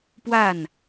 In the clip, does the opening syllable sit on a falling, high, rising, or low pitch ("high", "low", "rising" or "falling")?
falling